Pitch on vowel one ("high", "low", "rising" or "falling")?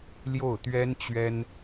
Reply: falling